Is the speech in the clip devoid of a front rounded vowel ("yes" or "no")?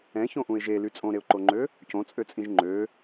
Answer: no